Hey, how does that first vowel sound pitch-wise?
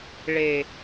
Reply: low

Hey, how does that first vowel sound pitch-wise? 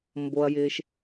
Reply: low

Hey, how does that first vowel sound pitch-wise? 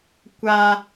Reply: high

